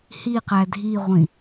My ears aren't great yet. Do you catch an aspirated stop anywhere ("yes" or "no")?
no